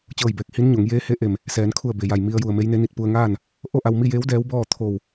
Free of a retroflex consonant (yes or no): yes